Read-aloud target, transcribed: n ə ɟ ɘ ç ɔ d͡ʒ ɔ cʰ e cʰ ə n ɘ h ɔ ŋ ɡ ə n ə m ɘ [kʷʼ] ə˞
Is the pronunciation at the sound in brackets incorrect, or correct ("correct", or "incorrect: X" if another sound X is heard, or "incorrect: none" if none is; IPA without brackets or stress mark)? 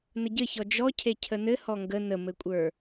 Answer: correct